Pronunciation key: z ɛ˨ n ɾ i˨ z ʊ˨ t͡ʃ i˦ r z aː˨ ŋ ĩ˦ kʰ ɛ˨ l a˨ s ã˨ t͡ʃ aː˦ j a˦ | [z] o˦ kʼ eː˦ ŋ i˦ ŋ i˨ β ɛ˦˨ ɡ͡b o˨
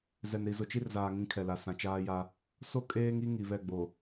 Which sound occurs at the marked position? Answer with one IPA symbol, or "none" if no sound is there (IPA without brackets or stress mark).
s